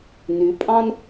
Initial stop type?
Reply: ejective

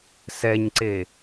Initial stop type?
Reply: click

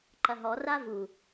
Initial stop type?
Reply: click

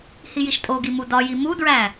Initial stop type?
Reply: ejective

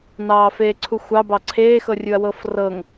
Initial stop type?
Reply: click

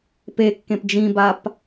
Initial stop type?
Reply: plain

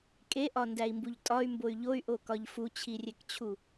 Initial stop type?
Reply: ejective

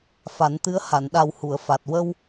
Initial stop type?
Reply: plain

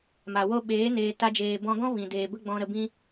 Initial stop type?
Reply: implosive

